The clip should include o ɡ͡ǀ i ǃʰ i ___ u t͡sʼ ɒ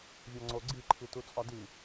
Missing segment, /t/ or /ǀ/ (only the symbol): t